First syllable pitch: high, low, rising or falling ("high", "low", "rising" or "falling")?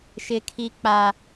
high